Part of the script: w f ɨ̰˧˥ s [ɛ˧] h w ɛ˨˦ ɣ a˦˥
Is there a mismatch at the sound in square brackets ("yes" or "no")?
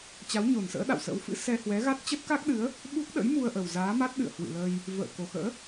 no